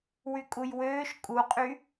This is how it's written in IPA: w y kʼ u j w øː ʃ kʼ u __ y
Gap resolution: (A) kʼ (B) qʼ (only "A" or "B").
B